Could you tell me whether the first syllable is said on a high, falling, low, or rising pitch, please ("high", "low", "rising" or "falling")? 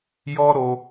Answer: high